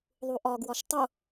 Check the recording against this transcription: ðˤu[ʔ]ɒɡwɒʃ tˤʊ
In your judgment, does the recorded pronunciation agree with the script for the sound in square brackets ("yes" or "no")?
yes